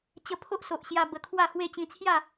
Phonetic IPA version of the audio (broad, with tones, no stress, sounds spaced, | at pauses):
t͡ɕ ə˧ pʰ o˦ ʔ s o˨ ʔ ɕ j a˧ b ə˧ kʰ w a˥˧ h w e˥˧ t͡ɕ ĩ˧ t͡sʰ j a˥˧